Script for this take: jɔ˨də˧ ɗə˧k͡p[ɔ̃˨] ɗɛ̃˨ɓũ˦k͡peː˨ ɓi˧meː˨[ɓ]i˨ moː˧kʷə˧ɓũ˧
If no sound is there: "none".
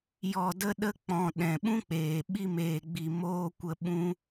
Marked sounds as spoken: ɔ̃˨, ɡ͡b

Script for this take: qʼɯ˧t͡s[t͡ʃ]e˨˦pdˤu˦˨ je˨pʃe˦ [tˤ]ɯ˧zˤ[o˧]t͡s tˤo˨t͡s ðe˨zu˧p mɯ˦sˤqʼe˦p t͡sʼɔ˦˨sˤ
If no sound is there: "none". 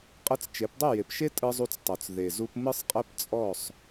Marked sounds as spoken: t͡ʃ, tʼ, u˧

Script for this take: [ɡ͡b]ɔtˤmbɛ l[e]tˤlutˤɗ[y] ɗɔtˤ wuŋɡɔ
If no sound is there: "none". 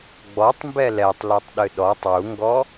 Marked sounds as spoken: ɡ͡b, ɛ, ɨ

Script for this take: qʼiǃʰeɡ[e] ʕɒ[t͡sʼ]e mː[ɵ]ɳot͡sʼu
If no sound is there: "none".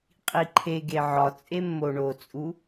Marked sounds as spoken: e, t͡sʼ, o

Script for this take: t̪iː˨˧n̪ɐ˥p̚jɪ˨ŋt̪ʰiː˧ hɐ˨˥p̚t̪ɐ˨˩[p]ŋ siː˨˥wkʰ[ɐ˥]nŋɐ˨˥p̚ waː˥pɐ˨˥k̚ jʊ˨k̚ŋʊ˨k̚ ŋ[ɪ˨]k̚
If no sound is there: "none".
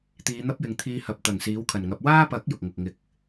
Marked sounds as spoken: none, ɐ˨˩, ɪ˧

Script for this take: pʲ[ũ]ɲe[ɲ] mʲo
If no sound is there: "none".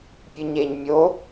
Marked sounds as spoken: u, ɲ

